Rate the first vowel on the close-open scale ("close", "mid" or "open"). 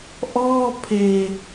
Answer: mid